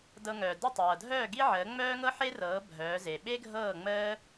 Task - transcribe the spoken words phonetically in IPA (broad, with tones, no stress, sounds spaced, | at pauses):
d ɤ˧ ŋ œː˩ d ə˥˩ tˤ ɤː˩ dʱ œː˥˩ ɡ i˥ ʕ əː˩˥ ŋ͡m œː˥ ŋ ɤ˥ ħ e˥ r ɤː˩˥ bʱ œː˩˥ z e˩ ɓ e˥ ɡʱ ɤː˥˩ ŋ͡m əː˥